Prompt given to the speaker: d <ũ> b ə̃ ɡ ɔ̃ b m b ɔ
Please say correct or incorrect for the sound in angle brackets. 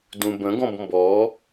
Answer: correct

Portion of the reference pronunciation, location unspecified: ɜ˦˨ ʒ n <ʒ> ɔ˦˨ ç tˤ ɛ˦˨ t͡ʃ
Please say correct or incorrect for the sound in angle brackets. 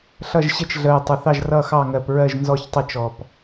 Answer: incorrect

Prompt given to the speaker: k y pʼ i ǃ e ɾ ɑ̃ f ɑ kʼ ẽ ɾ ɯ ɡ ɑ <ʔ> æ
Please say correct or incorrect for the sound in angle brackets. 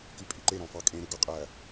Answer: incorrect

